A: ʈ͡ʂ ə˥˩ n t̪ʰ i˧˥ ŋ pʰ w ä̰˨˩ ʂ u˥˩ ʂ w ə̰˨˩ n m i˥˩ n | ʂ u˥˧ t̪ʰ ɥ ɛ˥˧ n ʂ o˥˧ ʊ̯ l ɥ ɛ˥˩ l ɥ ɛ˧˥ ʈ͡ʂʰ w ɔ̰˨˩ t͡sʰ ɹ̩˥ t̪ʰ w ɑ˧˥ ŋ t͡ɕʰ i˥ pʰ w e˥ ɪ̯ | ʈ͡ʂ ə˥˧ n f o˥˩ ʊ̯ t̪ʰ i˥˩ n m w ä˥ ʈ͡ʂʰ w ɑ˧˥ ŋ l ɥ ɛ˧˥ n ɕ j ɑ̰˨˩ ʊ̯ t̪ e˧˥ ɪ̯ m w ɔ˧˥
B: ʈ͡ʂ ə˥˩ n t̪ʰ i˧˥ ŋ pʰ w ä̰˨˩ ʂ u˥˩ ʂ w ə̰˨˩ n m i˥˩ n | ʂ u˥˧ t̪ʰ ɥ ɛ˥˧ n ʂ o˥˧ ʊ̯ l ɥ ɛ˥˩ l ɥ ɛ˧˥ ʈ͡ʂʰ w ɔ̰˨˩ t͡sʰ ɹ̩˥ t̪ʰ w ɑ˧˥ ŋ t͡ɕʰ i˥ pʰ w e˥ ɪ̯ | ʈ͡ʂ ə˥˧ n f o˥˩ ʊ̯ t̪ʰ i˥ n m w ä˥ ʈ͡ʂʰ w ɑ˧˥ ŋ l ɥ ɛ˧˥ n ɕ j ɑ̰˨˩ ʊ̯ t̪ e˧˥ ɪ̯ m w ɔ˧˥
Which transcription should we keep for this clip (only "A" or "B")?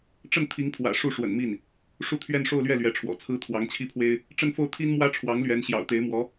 B